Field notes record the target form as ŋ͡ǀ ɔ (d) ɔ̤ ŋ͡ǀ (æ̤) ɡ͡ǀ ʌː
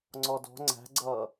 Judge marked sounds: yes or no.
yes, yes

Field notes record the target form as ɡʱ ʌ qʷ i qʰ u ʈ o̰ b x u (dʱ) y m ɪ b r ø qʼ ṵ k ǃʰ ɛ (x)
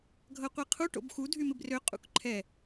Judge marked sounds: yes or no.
yes, no

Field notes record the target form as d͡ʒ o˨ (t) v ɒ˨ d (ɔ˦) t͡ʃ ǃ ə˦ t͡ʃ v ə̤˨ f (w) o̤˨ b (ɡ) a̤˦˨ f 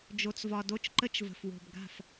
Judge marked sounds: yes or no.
no, no, yes, yes

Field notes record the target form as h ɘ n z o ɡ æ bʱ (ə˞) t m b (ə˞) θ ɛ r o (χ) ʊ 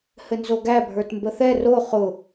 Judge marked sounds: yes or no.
yes, no, yes

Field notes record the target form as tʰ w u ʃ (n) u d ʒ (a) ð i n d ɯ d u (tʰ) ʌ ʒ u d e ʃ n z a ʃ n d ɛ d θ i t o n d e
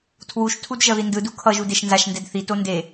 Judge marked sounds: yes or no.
no, no, no

